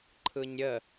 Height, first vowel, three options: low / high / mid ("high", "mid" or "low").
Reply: high